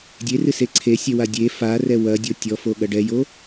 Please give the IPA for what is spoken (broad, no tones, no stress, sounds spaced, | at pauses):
dʲ e r ɨ s e ǀʰ e sʲ ɛ w a dʲ e f a r ɛ w ɐ dʲ o tʲ ɔ f o ɠ ɐ ɖ ɛ j o